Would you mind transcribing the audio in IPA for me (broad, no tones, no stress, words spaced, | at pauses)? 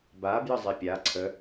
ba bjəzˤepʲa ǀʰə